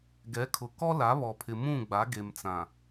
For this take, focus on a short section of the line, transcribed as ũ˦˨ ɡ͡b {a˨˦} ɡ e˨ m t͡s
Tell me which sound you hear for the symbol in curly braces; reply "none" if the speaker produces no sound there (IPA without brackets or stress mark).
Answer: a˨˦